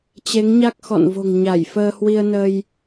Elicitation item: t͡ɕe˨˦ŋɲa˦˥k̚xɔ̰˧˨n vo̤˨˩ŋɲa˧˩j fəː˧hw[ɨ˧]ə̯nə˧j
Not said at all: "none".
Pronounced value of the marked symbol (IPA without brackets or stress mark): i˧